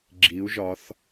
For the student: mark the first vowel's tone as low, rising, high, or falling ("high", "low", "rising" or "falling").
rising